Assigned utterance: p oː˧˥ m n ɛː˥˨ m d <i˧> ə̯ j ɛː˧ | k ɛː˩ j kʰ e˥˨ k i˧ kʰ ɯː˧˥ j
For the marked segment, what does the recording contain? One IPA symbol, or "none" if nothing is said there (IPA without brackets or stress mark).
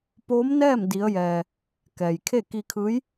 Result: i˧˥